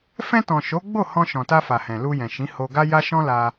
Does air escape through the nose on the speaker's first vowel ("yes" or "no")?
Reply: yes